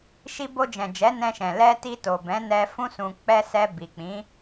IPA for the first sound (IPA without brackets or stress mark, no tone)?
ʃ